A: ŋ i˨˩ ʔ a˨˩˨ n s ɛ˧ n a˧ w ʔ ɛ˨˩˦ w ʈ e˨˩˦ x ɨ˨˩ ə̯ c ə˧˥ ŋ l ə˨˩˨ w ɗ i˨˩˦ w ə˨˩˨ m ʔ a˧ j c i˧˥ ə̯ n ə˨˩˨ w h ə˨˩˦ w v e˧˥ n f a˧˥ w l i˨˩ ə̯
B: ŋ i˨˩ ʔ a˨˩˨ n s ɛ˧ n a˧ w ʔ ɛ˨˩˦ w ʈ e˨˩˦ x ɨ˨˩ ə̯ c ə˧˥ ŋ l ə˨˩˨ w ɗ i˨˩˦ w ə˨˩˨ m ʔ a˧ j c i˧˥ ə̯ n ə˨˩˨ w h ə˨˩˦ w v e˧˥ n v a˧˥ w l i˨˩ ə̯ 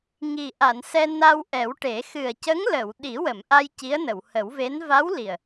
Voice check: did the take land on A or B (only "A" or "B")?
B